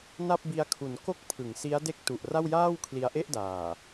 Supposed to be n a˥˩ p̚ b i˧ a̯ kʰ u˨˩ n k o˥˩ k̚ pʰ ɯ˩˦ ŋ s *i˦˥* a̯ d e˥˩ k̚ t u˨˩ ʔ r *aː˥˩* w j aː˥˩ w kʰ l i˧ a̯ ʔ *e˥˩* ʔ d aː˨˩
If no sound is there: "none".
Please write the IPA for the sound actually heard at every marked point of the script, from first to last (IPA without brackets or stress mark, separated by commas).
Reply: i˦˥, a˥˩, e˥˩